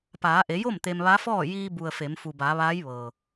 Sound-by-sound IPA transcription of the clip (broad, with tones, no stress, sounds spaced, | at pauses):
p aː˩˧ ʔ e˩˧ j o˥˨ m t̪ e˧ m ʋ a˧˥ f ɔː˥˨ j iː˧ b u˩ ə̯ f e˩˧ m f u˩ b a˩˧ ʋ aː˧˥ j ʋ ɤː˩